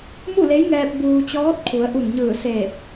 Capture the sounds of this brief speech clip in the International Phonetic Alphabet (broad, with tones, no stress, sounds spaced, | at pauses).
m u˥˨ l e˧˥ j ŋ ɛː˧ p̚ b uː˧ t͡ɕ ɔː˧˥ t̚ kʰ u˩˧ ə̯ ʔ u˧˩ n ɲ ɯː˧˩ s eː˧˩ p̚